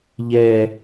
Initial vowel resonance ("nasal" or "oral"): oral